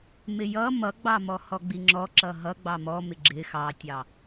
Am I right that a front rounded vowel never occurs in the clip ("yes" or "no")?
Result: yes